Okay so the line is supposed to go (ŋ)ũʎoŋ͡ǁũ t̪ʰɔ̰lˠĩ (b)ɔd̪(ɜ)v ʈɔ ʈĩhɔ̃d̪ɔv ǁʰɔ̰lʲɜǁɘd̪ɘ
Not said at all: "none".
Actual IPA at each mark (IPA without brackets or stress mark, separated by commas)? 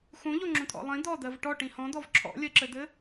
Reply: x, d̪, ɜ